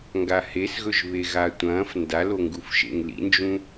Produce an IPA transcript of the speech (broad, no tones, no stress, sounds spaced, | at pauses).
ŋ ɡ a h e s ɣ ɵ ʒ β e ɣ a tʷ ɐ̃ː f n d a l o ŋ ɡ u f ʃ ḛ ŋ l ḭ n d͡ʒ ũ